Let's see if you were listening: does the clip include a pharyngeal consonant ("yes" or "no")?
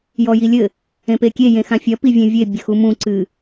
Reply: no